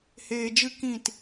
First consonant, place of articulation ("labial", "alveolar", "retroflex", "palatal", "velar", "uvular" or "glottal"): glottal